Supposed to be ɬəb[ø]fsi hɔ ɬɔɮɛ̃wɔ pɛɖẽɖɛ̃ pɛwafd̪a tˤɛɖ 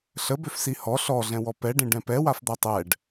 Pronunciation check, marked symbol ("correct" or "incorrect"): correct